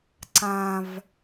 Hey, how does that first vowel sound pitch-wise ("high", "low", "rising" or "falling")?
low